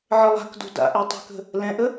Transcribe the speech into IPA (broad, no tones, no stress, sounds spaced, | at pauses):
ʕ ə lˠ a̤ k d o̤ d a̰ ʔ ɛ tˤ ə̤ k ə̤ | l ɛ̃ ʔ ə